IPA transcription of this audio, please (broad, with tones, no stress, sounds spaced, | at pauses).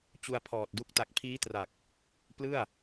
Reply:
t͡ɕ u˧ a̯ pʰ ɔː˨˩ t̚ d u˦˥ k̚ t a˨˩ k̚ pʰ iː˦˥ t r a˨˩ k̚ | p l ɯ˥˩ a̯